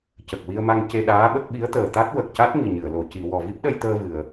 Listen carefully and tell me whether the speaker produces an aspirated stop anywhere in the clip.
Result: no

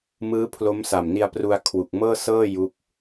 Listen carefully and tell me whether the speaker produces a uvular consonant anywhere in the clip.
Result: no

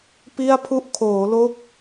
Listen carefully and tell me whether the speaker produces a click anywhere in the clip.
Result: no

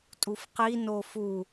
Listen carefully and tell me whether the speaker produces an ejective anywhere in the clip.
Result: yes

